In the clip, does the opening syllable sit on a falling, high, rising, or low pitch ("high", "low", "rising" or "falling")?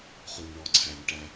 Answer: low